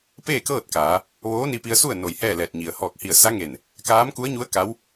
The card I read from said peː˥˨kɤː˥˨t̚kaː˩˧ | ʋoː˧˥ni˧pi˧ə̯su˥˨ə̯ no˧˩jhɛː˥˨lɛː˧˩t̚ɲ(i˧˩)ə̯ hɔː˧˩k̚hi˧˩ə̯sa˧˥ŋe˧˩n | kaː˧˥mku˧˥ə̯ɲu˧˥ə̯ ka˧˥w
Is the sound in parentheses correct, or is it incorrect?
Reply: incorrect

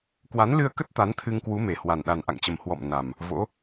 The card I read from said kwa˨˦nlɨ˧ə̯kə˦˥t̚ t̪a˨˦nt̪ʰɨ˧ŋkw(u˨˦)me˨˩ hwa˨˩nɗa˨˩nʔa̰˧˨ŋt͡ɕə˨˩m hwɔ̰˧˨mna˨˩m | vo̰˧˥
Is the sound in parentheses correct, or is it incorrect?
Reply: correct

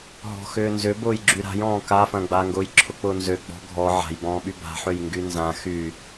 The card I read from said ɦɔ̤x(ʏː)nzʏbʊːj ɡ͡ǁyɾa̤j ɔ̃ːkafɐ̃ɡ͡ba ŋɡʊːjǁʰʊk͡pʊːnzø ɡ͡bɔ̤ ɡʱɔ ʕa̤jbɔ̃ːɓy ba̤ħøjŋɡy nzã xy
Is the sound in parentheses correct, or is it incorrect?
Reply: correct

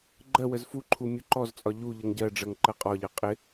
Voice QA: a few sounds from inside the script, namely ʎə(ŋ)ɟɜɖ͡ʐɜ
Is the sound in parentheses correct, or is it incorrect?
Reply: correct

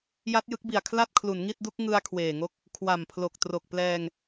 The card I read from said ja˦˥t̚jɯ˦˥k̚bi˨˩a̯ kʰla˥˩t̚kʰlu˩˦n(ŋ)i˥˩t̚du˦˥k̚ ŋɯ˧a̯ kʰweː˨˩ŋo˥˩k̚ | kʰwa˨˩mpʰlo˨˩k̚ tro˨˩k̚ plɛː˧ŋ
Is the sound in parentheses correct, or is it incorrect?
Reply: correct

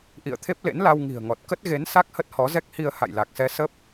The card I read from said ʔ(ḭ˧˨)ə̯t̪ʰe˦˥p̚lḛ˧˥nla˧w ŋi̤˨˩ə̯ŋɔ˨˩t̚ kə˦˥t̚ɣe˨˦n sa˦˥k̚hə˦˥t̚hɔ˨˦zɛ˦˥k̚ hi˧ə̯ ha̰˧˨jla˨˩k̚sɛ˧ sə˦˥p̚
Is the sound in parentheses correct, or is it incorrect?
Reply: correct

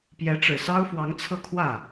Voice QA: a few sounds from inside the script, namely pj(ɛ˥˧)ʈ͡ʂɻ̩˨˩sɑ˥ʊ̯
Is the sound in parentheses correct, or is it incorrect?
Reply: incorrect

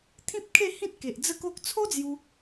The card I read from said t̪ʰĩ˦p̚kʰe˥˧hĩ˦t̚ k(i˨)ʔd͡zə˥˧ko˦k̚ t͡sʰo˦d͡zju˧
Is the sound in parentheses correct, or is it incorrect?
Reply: incorrect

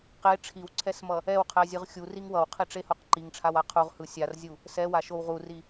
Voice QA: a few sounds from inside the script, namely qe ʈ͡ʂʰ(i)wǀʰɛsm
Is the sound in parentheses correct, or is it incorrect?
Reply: correct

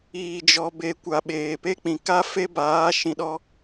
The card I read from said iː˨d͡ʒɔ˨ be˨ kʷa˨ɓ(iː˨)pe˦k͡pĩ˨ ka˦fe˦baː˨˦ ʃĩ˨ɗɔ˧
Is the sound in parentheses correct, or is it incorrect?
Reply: incorrect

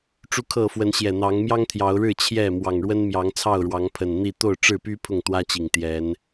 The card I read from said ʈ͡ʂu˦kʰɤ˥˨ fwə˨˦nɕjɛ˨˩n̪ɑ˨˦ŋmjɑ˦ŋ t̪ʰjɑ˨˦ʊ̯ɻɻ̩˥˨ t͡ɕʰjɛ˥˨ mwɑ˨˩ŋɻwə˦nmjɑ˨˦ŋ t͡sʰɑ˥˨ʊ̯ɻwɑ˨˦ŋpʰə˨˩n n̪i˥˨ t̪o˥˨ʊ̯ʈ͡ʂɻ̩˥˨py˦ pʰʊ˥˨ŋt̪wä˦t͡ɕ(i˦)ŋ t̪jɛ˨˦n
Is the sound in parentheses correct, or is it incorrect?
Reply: incorrect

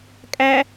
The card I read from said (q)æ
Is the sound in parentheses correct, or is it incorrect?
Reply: incorrect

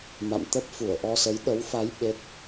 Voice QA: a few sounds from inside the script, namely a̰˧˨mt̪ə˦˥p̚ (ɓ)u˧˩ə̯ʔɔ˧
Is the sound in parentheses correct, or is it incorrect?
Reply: incorrect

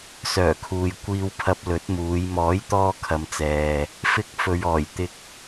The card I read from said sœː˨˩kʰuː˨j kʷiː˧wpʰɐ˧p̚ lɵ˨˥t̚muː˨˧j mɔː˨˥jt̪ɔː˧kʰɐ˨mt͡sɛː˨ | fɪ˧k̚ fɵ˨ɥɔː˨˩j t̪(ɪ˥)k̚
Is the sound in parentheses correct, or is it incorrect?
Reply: incorrect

